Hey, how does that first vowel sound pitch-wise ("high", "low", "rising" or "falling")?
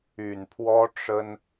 low